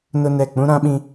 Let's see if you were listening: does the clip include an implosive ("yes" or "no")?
yes